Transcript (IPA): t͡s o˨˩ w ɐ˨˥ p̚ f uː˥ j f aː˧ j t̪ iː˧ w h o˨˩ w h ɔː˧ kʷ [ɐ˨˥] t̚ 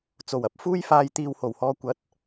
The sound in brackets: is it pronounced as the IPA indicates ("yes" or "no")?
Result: yes